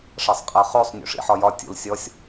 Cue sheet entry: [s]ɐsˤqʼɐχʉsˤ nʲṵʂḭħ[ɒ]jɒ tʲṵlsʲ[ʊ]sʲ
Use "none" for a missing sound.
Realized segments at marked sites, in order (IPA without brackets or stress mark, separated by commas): ʂ, ɒ, ɔ